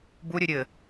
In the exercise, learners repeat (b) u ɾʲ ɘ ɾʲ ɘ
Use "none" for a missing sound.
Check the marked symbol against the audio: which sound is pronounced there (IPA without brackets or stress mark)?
b